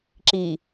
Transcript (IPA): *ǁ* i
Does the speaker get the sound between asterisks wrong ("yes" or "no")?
no